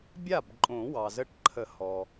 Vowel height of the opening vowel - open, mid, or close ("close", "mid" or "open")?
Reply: open